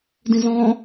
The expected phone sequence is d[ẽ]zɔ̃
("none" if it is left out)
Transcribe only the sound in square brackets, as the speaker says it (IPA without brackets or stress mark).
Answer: ĩ